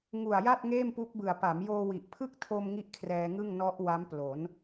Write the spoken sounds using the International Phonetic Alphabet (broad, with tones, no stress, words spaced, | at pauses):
ŋu˨˩a̯ja˥˩t̚ ŋeː˥˩mpu˦˥k̚bɯ˨˩a̯ pa˩˦mjoː˧wi˨˩ʔ pʰɯ˥˩k̚tʰo˧m ŋi˥˩ʔkʰrɛː˧ŋɯ˥˩ŋ nɔ˦˥ʔ wa˦˥m plo˩˦n